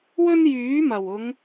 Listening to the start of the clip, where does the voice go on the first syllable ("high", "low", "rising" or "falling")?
high